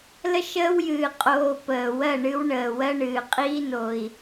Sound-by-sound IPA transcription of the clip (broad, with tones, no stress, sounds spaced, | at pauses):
l ə˦ ʃ əː˦ w j ɨː˨ qʼ oː˧ p əː˨ w ɜ˦˨ ɳ ɨ˧ w ɳ əː˨ w ɜ˧ ɳ ɨː˨ qʼ iː˧ n o˨ i̯